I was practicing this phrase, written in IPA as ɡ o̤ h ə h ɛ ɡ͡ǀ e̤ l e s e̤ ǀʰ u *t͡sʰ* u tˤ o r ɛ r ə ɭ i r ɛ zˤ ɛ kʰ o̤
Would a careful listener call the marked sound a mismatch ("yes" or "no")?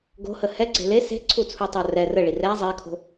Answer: no